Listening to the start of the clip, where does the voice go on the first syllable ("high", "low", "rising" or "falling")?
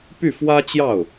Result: falling